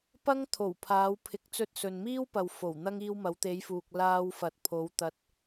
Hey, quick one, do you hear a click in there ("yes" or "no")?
no